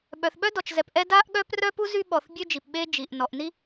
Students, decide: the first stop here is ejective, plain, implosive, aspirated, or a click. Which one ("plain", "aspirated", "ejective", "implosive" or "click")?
implosive